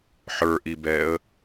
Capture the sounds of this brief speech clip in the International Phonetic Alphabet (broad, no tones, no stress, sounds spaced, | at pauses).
ħ ə˞ ʔ i b ɛː ə̯